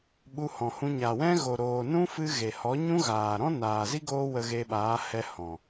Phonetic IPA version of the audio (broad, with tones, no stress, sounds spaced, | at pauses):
ɓ u˧ h ɔ̃˨ h ũ˧ ɲ a˨ w ɛ̃˦ ɣ o˨ ɾ oː˨ n ũ˦ f ɨ˧ ɣ e˨ h ɔ˨˦ ɲ ũ˦ ɣ aː˨ ɾ ɔ̃˦ n aː˨ z i˦ ɡ oː˦ w ə˧ ɣ e˧ ɓ aː˨˦ h ɛ˧ h ɔ̃˨